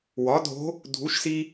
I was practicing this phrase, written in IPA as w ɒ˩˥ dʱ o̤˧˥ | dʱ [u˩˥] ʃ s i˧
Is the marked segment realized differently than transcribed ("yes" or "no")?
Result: no